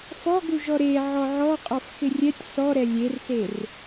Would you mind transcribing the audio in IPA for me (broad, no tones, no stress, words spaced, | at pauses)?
fɔɡu ʒɔɾe ʕɔʕɔ qʼɔfxɪrʲɛtʲ sɔ ɾɛlʲerser